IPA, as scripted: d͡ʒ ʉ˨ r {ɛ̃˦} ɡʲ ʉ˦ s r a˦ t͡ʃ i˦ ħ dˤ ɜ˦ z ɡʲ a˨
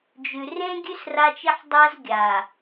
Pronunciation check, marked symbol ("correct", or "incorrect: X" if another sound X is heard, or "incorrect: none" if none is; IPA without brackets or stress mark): incorrect: ẽ˦